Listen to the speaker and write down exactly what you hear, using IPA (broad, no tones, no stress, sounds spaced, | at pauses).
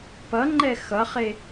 p ʌ ŋ͡ǃ ɛ x ʌ χ e